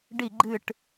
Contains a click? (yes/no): yes